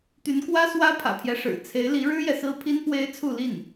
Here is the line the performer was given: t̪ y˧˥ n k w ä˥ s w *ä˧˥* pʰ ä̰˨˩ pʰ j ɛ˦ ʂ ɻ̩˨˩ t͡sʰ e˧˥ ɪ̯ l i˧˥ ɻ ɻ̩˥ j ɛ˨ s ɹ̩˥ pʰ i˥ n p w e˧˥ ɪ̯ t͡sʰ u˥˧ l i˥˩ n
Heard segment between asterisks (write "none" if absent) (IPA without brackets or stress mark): ä˥